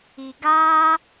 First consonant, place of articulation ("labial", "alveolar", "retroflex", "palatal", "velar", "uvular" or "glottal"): velar